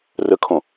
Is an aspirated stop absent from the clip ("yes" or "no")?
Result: no